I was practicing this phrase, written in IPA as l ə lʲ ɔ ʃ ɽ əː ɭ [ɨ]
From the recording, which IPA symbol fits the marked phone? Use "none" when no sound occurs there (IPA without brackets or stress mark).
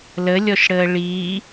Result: i